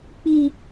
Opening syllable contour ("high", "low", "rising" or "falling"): high